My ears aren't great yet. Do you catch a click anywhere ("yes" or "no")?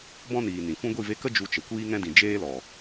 no